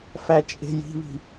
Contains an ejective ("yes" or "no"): yes